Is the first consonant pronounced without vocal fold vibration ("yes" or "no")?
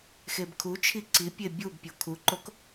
yes